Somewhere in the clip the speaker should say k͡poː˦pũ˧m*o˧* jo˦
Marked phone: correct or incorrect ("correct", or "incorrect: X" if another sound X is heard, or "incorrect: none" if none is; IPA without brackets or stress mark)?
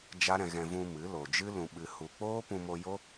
correct